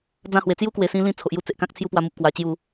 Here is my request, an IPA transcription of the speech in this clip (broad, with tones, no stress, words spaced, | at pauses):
d͡zã˧hwe˨˩ t͡sju˦kwe˨˩sĩ˧lĩ˧ t͡sʰo˨ʔ ju˦t͡se˨ʔkã˦k̚ t͡sʰju˦pwa˧mu˨p̚ kwa˧t͡ɕju˥˧